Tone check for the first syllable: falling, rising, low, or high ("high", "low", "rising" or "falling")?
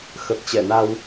low